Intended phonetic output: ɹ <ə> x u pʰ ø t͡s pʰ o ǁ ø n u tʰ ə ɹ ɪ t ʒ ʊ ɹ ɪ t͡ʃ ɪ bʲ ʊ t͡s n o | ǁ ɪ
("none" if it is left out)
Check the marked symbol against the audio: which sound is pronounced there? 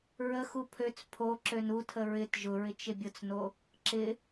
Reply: ə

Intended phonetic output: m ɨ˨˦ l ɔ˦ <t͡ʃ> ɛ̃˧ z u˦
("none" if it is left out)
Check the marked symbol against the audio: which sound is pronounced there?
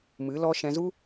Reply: ʃ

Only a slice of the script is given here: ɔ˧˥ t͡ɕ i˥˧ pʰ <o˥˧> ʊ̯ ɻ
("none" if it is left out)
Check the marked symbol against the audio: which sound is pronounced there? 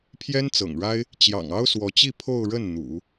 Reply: o˥˧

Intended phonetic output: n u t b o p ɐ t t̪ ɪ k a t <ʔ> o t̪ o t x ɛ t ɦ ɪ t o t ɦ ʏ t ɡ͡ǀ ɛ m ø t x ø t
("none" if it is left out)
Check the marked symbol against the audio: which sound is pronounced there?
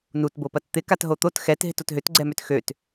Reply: ɦ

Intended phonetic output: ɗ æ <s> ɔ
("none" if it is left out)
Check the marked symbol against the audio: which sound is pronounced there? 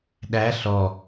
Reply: ɬ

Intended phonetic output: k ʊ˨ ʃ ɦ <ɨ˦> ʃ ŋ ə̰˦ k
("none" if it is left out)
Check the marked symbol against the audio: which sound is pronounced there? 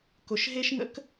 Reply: e˦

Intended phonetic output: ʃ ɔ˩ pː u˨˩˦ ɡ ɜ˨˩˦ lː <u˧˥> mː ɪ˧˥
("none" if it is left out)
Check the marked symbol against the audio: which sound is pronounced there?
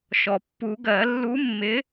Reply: u˧˥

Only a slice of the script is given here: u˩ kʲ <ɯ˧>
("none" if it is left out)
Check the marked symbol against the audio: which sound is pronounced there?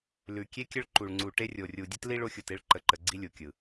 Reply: ɯ˩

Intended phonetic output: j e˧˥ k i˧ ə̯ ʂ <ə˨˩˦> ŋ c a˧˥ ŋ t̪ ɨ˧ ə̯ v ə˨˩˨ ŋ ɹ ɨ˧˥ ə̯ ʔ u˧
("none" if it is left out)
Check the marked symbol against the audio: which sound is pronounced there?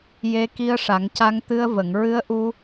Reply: a˨˩˦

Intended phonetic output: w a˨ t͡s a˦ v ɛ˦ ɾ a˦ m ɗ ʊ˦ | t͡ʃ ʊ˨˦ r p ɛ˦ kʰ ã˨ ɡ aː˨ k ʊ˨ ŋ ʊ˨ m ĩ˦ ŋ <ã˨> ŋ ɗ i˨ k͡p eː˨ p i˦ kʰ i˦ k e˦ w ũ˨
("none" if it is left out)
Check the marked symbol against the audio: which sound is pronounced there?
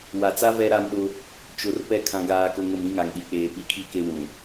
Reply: a˨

